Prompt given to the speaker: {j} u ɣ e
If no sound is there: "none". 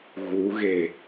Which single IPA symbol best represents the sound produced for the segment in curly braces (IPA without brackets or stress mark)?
ɣ